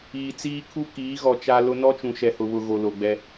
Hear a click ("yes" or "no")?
no